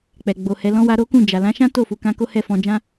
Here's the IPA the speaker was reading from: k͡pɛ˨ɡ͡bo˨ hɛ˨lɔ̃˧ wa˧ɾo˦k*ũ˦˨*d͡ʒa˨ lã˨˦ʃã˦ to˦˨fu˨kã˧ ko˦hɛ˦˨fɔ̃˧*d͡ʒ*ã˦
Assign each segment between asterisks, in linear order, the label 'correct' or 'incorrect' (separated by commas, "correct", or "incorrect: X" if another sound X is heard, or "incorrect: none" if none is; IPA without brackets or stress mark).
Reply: correct, correct